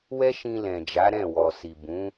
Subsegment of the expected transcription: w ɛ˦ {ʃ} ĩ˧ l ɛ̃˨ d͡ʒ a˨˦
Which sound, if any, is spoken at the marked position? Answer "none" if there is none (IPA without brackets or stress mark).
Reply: ʃ